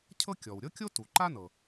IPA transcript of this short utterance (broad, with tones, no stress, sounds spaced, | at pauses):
cʰ ɤ˥ kʲ ɔ˩ w ɾʲ ɤ˥ kʲ o˥ t u˩ ǃ a˥ n ɤ˩